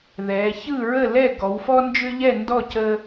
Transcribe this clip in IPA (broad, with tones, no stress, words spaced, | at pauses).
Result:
ðɛ˩˧çɯ˥˩ ɹə˥˩lɛ˥˩ ɡɔ˩˧wfɔ˦ nd͡ʒʏ˦ʎɛ˥˩ndɔ˥˩ cə˦